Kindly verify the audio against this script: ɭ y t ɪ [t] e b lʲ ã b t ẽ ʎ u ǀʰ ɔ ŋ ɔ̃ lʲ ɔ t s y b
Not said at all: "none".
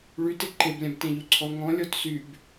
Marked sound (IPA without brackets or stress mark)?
ǃ